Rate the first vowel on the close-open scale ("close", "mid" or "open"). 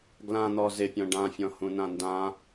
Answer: open